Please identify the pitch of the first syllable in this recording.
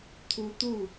rising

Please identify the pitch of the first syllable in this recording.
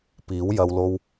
rising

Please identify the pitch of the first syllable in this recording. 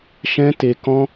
high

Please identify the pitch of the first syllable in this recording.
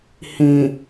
low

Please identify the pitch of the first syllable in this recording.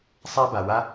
high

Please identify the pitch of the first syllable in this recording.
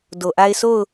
low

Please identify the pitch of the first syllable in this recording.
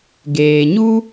low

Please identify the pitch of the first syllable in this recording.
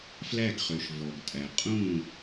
falling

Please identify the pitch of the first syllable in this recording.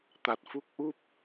low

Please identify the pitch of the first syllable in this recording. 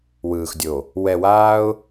low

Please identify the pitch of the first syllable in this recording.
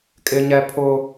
high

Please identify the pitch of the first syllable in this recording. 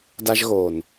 high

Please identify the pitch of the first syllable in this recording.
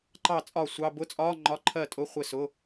falling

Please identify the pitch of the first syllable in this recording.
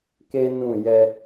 high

